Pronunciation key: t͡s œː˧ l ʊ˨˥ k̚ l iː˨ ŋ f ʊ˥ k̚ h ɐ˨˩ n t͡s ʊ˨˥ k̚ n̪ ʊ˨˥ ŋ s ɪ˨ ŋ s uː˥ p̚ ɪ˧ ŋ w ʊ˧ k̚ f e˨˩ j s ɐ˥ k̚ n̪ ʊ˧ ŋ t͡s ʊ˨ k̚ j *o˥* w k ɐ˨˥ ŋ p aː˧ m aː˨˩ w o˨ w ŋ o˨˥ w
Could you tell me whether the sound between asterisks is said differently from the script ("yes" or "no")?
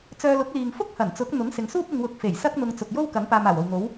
no